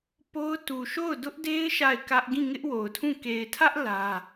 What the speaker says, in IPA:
p o˦ ʊ̯ t u˨ ʃ o˦˨ ʊ̯ d ʊ˦ ʔ d e˦ ɪ̯ ʃ a˦˨ ɪ̯ k ä˦ ʔ ɡ ĩ˦˨ ŋ ɪ˦ ʔ w o˨ ʊ̯ tʰ ũ˦˨ k e˨ ɪ̯ tʰ ä˦ ʔ l ä˦

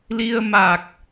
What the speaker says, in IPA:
l i˧ ə̯ m a˨˩ k̚

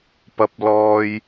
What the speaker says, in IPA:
p ɐ˧ p̚ l ɔː˧ j

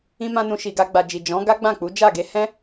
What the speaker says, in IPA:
ĩ˦ m ã˦ n ũ˧ ʃ i˨ ɡ a˧ ɡ͡b a˨ d͡ʒ i˨ d͡ʒ ɔ̃˨˦ ɡ a˦ ɡ͡b ã˦˨ k͡p u˨˦ d͡ʒ a˦˨ ɡ e˨˦ h ɛ̃˦

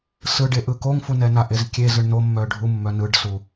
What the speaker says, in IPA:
s ɯ ɖ e ʔ ɯ k o ŋ f u n ɛ n a ʔ e z kʲ e z ɯ ɳ n o mː œ ɖʱ u mː œ n ɯ ɖ s u

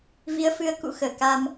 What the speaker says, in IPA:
v i˨˦ ə̯ f ɨ˨˦ ə̯ k ṵ˧˥ x əː˧˩ k a˧ m

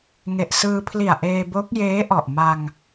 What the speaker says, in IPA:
ŋ e˨˩ ʔ s ɯː˧ pʰ l i˨˩ a̯ ʔ eː˧ b o˦˥ k̚ j eː˦˥ ʔ ɔ˨˩ ʔ m a˧ ŋ

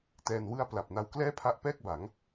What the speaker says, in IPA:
t ɛː˧ n w ɯ˥˩ a̯ p l a˨˩ p̚ n a˧ w k l ɛː˥˩ pʰ a˦˥ ʔ p ɛː˥˩ k̚ b a˩˦ ŋ

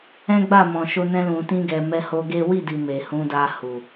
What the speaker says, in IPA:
ɛ̃˦ ɡ͡b a˦˨ m ɔ̃˨ ʃ o˧ n ɛ̃˧ l ũ˨ t ĩ˧ ɡ ɛ˨ m ɛ˧ h o˧ ɡ e˦ w i˦˨ d i˨ m e˨ h ũ˨˦ d a˧ h u˨

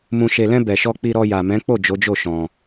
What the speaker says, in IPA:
m ũ˨ ʃ e˨ l ɛ̃˧ b ɛ˨ ʃ ɔ˧ k͡p i˧ ɾ ɔ˧ j a˨ m ɛ̃˨˦ k͡p o˦˨ d͡ʒ o˨˦ d͡ʒ o˦˨ ʃ ɔ̃˧

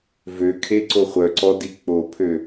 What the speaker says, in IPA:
v ø kʰ e ǀ o χʷ œ ǀ ɔ d i k͡p o pʰ ø

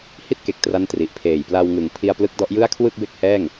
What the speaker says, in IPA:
h i˥˩ t̚ k e˨˩ k̚ t r a˦˥ n t r i˨˩ ʔ pʰ eː˨˩ j p l a˧ w ŋ ɯ˨˩ ŋ pʰ i˧ a̯ p l ɯ˦˥ k̚ d ɔ˦˥ ʔ j ɯ˥˩ a̯ kʰ w ɯ˥˩ k̚ b e˥˩ k̚ h ɛː˥˩ ŋ

